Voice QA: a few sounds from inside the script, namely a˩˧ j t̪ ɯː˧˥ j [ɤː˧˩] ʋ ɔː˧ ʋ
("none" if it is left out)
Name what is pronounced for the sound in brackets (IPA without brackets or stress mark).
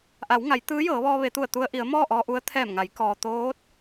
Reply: ɤː˩˧